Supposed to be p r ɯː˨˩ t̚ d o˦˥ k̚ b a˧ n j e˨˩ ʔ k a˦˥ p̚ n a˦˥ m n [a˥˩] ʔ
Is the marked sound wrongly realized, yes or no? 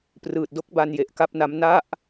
no